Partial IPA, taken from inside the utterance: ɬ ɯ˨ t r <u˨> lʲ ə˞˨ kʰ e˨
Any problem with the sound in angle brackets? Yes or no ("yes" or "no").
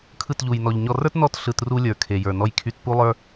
yes